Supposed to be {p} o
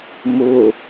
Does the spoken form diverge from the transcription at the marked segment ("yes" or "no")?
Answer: yes